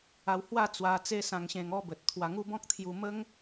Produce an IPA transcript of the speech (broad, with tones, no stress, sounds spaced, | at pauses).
a˧ w h w a˥˧ t͡s w a˧ t͡s e˦ s ã˧ ŋ ɕ ẽ˧ ŋ ɔ˦ b ə˨ t̚ t̪ʰ w a˧ ŋ u˦ b ɔ̃˦ k̚ t̪ʰ j u˧ m ə˦ ŋ